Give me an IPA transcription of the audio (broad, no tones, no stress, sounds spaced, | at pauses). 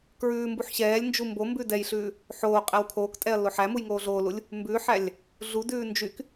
k ɹ ʉː m b u ħ ɕ ɛː lʲ n d͡ʒ u m b o m b ʉ d ɛ j ɬ ʉː | ħ oː qʼ æ w kʰ oː k tʼ ɛ ɐ̯ l o ħ æ m u j ŋ oː ɮ oː l u lʲ | m b ʉː ħ æ lʲ | ɮ u d ʉː n d͡ʒ y k